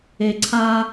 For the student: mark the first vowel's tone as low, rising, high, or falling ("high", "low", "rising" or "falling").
low